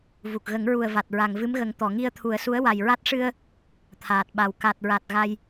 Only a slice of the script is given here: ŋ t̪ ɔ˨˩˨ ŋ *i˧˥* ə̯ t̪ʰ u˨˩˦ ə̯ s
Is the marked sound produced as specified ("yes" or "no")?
no